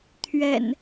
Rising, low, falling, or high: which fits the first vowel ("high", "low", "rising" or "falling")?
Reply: low